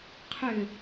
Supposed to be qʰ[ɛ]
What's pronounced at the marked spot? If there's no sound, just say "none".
ʏ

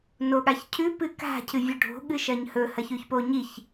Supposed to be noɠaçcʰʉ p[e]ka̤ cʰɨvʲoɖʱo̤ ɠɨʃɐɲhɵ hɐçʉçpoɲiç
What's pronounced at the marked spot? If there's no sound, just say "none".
ɨ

